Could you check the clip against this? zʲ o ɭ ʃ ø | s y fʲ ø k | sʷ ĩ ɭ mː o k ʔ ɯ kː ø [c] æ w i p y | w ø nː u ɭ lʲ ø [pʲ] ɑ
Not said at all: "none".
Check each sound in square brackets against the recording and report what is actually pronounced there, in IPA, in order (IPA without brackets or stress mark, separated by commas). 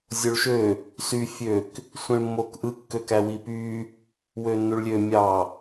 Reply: k, mʲ